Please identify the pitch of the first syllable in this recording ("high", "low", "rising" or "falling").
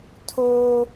high